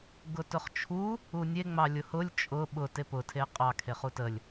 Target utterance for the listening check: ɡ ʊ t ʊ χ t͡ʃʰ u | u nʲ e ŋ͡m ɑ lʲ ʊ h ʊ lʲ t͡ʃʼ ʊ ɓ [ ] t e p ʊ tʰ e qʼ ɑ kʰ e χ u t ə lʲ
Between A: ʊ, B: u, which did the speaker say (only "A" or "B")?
A